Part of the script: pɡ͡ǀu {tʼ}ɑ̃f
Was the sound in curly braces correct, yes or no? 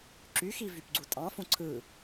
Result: yes